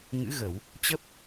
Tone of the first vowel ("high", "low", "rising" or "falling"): rising